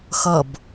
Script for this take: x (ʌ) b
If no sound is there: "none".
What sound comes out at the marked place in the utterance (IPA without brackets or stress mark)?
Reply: ʌ